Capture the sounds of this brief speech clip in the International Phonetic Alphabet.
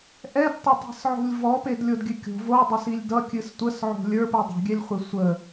ʔɛdtˤətˤi̤sʕo̤lʲ vɔpedlʲodɡʲɨ kʲo̤ vodˤʌsilʲ dʌkʲɨs tʷəsʕo̤ lʲə˞pɨ dˤo̤ɡʲɛlʲχʷe sʷə

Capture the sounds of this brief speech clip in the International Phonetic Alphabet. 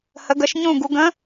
hə˨˦ɡə˨˦ʃɲũ˦˨ɡu˨˦ ɡə̃˨˦

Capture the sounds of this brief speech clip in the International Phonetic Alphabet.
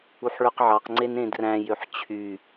uħɭøqʕɑqŋ͡ǀen ẽdræ̃jøħ t͡ɕʰy

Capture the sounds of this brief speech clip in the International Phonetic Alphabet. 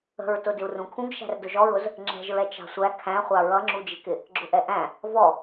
ə̤ɹtʊ dɪu̯rũkʰũɡ ʃæ̤rdʊʒɔɹʊz | ŋ͡ǁɛ̤ʒɹɛ t͡ʃɑ̤sʷæ kʰæ̃χʷɑ ɹʌŋ͡ǁud͡ʒɪkɪ | ɡ͡ǁʊʔɛʔæ̃ | vɔ

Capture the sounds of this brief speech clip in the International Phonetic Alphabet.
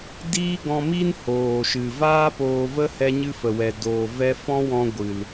diː˦ɡɔ̃˧ mi˦n hoː˨ʃɨ˨ vaː˦poː˧və˦ hɛ˦ɲɨ˦fə˨wɛ˨ doː˨ vɛ˧fɔ̃˦wɔ̃˧ ɡʷɨ˨l

